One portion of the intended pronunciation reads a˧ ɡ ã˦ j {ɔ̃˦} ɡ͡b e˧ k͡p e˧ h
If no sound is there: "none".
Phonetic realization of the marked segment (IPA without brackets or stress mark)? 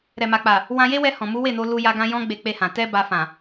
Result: ɔ̃˦